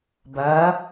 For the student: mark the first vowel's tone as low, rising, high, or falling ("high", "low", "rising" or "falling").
rising